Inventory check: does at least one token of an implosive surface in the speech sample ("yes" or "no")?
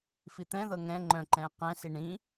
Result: no